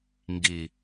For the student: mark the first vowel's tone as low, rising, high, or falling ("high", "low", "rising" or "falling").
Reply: low